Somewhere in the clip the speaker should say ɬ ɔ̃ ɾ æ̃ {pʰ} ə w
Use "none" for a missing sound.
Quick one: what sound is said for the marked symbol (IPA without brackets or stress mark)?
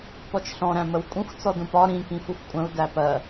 m